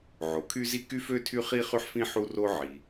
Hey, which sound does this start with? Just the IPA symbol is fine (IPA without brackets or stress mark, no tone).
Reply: ʕ